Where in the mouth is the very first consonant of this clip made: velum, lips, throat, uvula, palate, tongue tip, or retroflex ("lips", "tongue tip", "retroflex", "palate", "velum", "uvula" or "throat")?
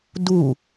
tongue tip